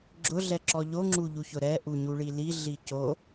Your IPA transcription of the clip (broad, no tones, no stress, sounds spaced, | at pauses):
ɡ͡ǁ ʊ ɮ ɛ ǁ ɔ ʎ o ŋ͡ǁ u ʎ u ç ʊ ɾ ɛ ʔ u ɲ u ɭ i l i ɮ i c o